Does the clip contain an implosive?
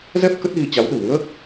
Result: yes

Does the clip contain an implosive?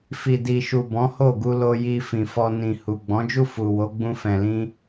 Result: no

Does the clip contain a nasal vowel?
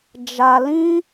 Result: yes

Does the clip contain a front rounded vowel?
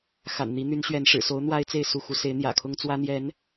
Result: yes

